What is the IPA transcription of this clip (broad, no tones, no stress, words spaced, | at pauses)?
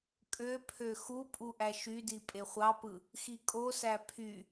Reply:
kʼøpʰø xupʼu ʔæʃydi pʼeχʷɑpɯ | xikʼosæ pʰy